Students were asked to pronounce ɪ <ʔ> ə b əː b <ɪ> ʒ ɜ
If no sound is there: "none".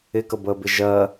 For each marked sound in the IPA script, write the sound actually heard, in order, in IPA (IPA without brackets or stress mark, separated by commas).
k, ɪ